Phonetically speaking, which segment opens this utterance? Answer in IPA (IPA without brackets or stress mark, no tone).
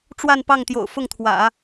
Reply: ʈ͡ʂ